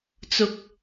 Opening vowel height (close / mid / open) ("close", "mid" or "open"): close